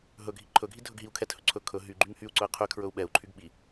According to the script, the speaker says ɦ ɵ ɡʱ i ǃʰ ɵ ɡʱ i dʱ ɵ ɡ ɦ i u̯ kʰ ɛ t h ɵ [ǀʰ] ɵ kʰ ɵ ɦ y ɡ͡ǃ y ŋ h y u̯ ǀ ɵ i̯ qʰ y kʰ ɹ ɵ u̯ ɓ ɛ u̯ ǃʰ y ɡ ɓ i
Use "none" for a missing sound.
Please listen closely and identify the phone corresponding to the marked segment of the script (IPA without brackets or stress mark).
ǀʰ